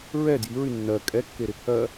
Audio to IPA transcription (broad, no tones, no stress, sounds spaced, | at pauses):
ɹ ɛ d j i ɹ y nː ɜ kʼ ɛ kː e ɾ ɪ pʰ ɜ